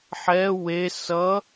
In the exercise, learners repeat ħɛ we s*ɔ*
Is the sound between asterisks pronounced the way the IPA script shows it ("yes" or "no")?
no